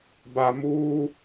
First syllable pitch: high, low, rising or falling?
low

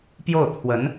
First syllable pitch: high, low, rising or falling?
falling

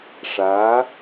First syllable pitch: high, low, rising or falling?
rising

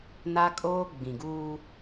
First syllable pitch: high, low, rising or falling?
high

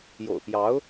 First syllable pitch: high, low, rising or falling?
low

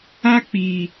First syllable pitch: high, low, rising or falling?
high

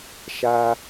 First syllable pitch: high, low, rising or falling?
high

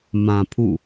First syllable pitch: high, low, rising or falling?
low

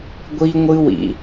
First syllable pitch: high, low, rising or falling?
high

